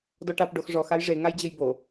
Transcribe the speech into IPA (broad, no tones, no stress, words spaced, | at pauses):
dɔʈap ɖoxʐɔx ajʐe ŋajd͡ʑɘjbo